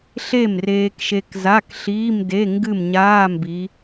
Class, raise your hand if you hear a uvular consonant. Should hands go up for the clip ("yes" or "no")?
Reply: no